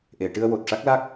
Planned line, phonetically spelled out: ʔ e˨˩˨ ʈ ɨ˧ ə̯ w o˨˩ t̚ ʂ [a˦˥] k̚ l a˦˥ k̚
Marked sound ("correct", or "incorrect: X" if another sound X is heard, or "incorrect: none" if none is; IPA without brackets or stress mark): correct